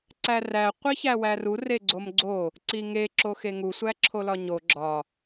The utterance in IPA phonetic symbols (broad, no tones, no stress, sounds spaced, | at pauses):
ǀ æ r æ qʷ i ç æ w æ r u r e ɡ͡ǀ o m ɡ͡ǀ o | ǀ i ŋ e ǁ o x e ŋ u sʷ æ ǁʰ o l ɒ ɲ o ɡ͡ǁ ɒ